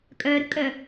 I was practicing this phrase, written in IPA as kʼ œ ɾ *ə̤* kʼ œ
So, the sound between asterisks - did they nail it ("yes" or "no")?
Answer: yes